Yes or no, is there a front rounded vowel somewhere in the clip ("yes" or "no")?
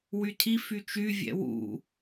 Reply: yes